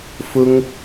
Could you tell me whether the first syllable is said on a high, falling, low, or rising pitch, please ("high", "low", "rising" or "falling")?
high